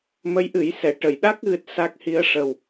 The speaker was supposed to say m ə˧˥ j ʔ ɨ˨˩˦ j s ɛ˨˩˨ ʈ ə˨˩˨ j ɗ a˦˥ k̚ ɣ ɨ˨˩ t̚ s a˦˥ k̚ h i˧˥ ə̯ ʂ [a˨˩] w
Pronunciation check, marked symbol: incorrect: ə˨˩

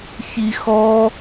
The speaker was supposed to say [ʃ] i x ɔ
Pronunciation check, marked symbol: incorrect: ç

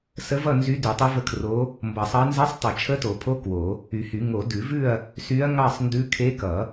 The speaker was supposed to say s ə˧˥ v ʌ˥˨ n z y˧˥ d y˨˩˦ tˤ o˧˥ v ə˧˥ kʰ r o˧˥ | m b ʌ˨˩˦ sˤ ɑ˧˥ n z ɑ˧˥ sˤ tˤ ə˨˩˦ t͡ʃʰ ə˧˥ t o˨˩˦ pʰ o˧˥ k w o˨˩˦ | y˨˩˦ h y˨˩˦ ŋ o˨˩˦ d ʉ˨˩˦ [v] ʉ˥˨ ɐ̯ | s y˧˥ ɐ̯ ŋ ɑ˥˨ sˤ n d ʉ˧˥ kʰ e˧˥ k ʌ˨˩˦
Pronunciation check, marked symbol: correct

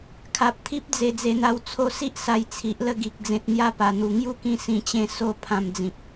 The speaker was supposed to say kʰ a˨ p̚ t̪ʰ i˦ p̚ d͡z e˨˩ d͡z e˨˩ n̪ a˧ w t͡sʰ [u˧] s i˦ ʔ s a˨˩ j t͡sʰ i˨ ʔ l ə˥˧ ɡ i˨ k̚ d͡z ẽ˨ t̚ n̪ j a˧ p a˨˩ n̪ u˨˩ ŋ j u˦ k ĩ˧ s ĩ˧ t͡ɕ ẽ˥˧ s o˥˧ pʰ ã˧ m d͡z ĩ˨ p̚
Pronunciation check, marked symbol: incorrect: o˧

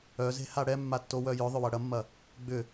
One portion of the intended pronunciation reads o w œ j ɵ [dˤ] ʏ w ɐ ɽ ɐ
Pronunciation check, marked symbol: incorrect: ðˤ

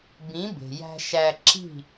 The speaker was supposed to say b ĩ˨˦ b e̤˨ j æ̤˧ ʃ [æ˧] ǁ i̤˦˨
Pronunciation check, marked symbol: correct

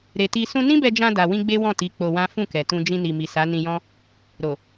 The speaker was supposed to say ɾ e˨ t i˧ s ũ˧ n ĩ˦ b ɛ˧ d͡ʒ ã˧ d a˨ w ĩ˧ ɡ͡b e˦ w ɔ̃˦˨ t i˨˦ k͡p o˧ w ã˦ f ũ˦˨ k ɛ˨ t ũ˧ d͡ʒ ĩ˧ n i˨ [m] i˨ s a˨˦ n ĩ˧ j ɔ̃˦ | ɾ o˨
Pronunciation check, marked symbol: correct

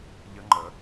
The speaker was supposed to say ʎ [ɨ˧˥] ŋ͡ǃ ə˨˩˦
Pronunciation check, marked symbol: incorrect: ə˧˥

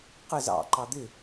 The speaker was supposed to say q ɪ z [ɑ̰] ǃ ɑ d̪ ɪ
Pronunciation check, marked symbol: correct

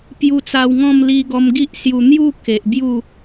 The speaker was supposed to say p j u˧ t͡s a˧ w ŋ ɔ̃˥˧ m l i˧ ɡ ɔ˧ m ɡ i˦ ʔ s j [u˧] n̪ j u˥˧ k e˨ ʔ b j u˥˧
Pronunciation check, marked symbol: correct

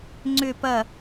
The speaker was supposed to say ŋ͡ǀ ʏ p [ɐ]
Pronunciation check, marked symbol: correct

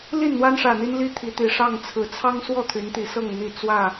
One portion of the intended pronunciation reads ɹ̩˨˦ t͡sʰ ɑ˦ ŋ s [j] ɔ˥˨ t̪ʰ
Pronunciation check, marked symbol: incorrect: w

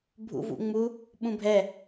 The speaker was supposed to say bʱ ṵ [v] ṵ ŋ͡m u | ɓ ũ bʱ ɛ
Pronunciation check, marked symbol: correct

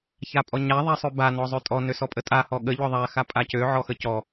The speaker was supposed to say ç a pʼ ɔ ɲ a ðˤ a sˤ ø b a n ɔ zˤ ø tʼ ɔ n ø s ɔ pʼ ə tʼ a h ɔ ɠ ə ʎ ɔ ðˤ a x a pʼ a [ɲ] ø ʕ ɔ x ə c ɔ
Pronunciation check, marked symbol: incorrect: c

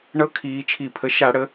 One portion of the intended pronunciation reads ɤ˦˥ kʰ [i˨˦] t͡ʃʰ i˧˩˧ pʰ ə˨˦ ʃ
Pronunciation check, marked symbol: incorrect: iː˨˦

